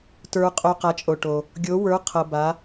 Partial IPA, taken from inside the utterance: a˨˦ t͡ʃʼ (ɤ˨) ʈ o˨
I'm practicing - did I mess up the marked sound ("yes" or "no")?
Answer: yes